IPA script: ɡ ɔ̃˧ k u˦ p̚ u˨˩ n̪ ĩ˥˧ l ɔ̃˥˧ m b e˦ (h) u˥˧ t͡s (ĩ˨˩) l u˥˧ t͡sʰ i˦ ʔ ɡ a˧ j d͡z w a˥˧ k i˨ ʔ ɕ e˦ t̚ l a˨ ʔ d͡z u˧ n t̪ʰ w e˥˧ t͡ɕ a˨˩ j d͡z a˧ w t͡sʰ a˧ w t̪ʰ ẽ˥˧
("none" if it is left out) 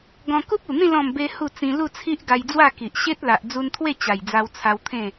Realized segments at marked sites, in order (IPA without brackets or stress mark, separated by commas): h, ĩ˧